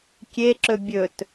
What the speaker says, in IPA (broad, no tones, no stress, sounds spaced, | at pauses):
kʲ e ǁ ɵ bʲ ɵ t